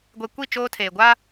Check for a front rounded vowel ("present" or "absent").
absent